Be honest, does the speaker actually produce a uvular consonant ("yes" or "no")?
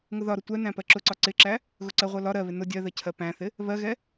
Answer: yes